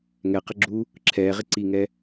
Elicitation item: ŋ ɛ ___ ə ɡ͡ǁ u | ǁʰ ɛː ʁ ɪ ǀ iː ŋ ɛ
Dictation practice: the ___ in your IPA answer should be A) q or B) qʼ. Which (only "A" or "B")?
A